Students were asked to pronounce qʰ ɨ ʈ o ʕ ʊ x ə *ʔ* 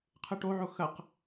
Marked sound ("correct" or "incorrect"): incorrect